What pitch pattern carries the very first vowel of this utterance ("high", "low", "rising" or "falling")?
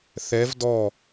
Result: rising